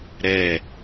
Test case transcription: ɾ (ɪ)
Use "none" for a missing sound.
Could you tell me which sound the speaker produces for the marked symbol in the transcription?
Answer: ɛ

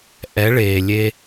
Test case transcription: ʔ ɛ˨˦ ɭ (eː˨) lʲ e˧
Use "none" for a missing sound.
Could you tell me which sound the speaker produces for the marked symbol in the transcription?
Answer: eː˨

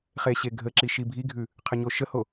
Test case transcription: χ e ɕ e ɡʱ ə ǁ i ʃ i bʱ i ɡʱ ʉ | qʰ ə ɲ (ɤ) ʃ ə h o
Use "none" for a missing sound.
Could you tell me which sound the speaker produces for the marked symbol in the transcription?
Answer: o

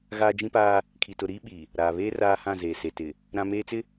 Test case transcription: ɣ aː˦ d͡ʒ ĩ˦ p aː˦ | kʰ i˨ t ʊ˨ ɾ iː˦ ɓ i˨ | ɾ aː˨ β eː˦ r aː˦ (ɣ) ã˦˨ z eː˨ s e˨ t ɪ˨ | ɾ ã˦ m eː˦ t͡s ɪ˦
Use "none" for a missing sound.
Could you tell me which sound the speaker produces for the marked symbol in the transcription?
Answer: h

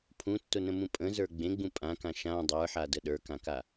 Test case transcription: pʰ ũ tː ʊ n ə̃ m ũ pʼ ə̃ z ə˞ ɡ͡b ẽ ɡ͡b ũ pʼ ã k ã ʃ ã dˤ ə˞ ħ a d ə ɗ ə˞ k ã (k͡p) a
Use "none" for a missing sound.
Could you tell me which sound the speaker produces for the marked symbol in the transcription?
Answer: k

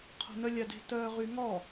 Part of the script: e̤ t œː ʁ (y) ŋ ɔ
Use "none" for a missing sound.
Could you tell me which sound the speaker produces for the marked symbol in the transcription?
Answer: y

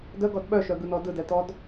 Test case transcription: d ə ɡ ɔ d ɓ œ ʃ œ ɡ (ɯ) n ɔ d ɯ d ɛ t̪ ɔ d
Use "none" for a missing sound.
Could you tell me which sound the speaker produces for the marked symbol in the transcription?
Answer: ɯ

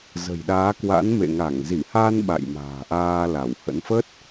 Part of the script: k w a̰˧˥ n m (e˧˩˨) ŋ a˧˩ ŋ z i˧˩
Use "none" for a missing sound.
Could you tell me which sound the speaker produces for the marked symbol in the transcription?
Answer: ḛ˧˨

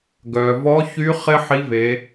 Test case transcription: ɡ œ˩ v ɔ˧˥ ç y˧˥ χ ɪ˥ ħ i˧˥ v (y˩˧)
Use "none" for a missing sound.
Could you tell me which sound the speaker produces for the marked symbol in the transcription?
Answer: e˩˧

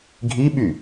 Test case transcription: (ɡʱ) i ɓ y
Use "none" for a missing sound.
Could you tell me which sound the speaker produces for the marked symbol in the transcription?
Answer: ɡʱ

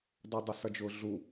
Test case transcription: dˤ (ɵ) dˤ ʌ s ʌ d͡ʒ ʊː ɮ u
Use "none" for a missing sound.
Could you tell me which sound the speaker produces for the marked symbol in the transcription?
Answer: ʊ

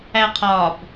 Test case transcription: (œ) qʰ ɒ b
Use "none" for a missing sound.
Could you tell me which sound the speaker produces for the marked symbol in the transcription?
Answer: æ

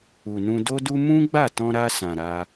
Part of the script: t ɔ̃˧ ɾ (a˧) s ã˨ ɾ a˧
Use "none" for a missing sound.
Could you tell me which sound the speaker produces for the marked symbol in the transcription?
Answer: a˧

